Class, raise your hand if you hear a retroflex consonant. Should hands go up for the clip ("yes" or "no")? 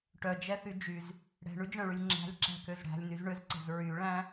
yes